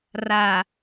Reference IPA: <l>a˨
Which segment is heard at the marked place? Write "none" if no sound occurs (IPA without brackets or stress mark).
r